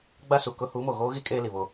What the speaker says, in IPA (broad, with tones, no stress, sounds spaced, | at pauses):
ɡ͡b a˦ s u˨ k ʊ˦ h u˨˦ m o˨ ɣ oː˦ ɣ i˦ kʼ eː˦ l i˨ β o˦